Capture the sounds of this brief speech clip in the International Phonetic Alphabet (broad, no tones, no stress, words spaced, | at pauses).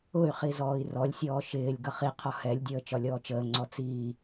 ʊy̯χi zɔːi̯rɔlʲsʲɔː ʃɪːlʲ ɡʌχiqʰɔ hɛlʲdʲəː t͡ʃɒlʲɔːt͡ʃəːŋ͡ǀɔ t͡siː